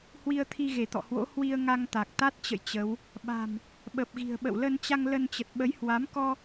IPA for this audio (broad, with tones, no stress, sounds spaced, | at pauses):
h w i˧ ə̯ t̪ʰ i˧ ɣ e˧˩ t̪ ɔ̰˧˨ h w o̰˧˥ h w i˧ ə̯ ŋ a˧ ŋ t̪ a˨˩ k̚ t̪ a˦˥ t̚ t͡ɕ ə̰˧˨ j t͡ɕ ə˨˦ w | ɓ a̤˨˩ m | ɓ ə˨˩ p̚ ɣ i̤˨˩ ə̯ ɓ ə̰˧˨ w l ə˧ n t͡ɕ a˧ ŋ l ə˧ n t͡ɕ ə˨˩ t̚ ɓ ə˨˦ j h w a˨˦ m k ɔ˧